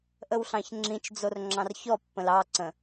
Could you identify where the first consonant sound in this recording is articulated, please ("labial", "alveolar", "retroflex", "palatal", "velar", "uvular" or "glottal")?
glottal